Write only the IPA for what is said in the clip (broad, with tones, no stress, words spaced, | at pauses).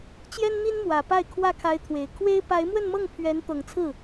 t͡ɕjɛ˥nn̪i˥n mwä˨˩ pa˥˧ɪ̯ kʰwä˥˩kʰa˧˥ɪ̯t̪ʰwe˨˩ɪ̯ kʰwe˥ɪ̯ pa˧˥ɪ̯mwə˥˧nmɤ˥˩ŋ pʰɥɛ˧˥n t̪ɤ˨˩ŋt͡sʰɹ̩˥˩